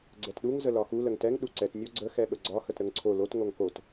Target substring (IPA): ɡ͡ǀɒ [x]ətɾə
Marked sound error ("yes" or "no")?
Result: no